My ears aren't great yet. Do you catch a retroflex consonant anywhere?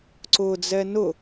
no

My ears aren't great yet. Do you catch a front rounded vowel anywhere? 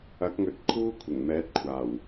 no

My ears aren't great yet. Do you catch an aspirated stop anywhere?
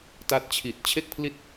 yes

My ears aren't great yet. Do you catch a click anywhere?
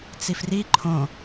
yes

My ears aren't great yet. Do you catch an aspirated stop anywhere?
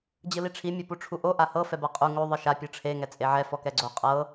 yes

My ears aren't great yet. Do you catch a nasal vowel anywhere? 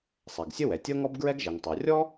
no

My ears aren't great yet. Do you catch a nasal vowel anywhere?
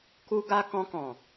yes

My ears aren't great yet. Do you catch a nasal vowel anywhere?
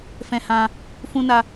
yes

